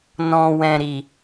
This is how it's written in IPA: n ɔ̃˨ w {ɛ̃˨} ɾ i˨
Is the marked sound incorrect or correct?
correct